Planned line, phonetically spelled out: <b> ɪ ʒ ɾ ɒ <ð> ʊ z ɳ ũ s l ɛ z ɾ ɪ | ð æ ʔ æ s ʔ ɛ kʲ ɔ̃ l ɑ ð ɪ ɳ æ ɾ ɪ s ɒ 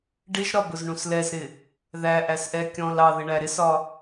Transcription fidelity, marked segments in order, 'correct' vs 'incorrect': incorrect: ɖ, incorrect: b

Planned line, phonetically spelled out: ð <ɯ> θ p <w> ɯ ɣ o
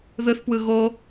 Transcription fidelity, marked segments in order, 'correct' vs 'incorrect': correct, correct

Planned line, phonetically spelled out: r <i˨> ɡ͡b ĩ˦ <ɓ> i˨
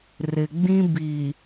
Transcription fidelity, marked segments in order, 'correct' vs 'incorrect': incorrect: ɪ˨, incorrect: b

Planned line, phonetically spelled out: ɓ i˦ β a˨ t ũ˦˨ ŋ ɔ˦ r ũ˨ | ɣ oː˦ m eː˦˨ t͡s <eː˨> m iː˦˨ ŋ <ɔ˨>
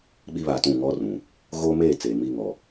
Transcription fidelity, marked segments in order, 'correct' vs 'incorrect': correct, correct

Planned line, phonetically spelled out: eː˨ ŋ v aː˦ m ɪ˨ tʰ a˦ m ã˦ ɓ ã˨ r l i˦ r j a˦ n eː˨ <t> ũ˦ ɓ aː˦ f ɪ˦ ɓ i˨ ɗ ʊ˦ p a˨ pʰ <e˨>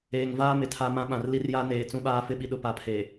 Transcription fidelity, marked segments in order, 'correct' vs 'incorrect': incorrect: t͡s, correct

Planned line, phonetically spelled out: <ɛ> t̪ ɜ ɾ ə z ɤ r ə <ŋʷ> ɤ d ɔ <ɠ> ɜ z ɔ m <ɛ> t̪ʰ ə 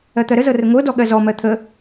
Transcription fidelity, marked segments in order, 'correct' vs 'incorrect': incorrect: ɜ, correct, correct, incorrect: ɜ

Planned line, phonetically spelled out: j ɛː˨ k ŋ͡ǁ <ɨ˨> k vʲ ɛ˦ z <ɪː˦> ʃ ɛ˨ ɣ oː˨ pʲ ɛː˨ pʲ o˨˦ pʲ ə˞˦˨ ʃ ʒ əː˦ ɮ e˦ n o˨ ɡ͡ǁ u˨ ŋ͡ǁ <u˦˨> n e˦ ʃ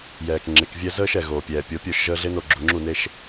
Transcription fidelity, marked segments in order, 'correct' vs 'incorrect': incorrect: e˨, incorrect: əː˦, correct

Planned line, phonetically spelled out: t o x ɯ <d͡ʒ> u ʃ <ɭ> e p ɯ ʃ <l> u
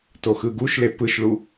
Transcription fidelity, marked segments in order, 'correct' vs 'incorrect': incorrect: ɡ, incorrect: l, incorrect: ɭ

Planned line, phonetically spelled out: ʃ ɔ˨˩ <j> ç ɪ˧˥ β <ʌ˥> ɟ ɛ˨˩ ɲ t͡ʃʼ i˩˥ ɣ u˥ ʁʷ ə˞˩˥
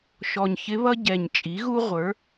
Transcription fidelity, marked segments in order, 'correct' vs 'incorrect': incorrect: ɲ, correct

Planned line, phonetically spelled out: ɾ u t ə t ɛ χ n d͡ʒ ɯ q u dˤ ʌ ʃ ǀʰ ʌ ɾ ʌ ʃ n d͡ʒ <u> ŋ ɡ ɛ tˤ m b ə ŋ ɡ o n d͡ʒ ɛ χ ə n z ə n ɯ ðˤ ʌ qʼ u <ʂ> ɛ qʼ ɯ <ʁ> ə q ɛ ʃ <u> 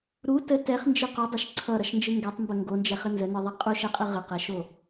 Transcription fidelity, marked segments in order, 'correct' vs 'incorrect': incorrect: ɯ, incorrect: ʃ, correct, incorrect: o

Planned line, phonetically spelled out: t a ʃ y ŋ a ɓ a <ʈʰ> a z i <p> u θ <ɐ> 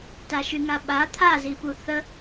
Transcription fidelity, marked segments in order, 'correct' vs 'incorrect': incorrect: t̪ʰ, correct, incorrect: ə

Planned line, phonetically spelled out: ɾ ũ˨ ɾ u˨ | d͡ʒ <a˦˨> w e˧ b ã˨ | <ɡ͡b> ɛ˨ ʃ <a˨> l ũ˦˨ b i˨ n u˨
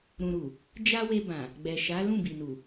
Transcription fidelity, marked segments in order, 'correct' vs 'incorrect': incorrect: a˧, correct, incorrect: a˨˦

